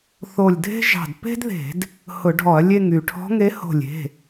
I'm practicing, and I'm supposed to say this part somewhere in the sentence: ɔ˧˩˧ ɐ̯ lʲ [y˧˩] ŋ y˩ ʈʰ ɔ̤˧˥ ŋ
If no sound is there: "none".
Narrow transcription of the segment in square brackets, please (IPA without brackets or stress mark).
e˧˩